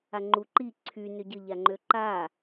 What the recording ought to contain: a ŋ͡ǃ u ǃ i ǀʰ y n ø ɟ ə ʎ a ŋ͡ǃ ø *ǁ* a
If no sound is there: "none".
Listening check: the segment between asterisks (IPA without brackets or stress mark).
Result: ǃ